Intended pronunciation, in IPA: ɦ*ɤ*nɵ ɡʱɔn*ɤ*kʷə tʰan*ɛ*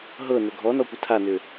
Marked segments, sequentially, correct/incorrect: correct, incorrect: ɔ, incorrect: ʏ

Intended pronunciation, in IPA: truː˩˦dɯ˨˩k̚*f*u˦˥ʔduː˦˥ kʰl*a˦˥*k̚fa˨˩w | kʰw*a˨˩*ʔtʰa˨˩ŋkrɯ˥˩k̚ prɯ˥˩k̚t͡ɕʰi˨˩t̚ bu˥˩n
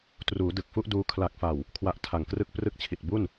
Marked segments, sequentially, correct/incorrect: correct, incorrect: a˨˩, incorrect: a˦˥

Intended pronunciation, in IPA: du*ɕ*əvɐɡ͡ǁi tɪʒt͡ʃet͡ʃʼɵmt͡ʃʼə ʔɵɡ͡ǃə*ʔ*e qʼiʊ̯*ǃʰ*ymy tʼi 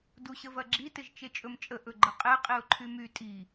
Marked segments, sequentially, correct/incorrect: correct, incorrect: qʼ, correct

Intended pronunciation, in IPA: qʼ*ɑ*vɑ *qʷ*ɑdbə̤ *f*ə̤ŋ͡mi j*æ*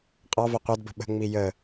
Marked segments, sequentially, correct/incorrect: correct, correct, incorrect: ɓ, incorrect: ə

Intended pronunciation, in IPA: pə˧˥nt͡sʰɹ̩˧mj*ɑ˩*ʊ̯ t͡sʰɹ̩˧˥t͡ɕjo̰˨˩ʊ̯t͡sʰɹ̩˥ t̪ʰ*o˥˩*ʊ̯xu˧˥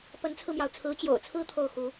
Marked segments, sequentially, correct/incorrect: correct, correct

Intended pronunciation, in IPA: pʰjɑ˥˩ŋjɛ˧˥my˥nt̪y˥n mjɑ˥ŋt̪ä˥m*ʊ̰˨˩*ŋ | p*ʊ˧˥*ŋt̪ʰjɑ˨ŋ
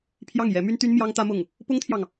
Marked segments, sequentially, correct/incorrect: incorrect: ʊ˥˩, incorrect: ʊ˥

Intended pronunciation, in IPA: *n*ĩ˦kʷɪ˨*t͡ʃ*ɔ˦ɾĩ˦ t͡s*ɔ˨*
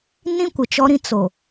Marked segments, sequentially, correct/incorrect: correct, correct, incorrect: o˨

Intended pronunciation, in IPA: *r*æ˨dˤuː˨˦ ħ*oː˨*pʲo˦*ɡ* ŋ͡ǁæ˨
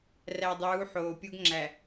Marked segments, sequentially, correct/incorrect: correct, correct, correct

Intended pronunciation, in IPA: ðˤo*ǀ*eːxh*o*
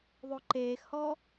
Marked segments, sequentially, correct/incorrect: incorrect: ǃ, incorrect: ɔ

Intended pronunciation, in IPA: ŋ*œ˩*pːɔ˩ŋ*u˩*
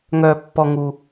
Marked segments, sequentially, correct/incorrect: correct, correct

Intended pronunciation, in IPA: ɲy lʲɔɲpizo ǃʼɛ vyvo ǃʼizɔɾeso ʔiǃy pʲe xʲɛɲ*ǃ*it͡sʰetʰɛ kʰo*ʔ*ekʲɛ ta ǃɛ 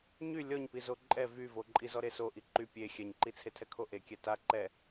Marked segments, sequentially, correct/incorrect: correct, correct

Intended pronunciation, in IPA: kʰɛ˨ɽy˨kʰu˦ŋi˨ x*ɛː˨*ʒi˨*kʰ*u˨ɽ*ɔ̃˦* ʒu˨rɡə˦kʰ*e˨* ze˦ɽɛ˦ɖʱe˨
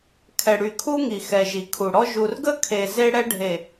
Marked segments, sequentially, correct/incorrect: incorrect: ɛ˨, correct, incorrect: ɔ˦, correct

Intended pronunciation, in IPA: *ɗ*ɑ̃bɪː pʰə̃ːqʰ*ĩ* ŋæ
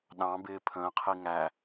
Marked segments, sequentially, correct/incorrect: correct, incorrect: i

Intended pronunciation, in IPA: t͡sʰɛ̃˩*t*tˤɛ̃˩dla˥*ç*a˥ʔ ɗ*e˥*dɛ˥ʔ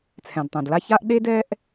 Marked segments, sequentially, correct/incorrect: incorrect: d, correct, correct

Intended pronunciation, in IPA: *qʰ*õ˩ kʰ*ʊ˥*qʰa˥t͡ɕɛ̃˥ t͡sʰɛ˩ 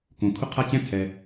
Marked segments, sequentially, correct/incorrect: incorrect: k, correct

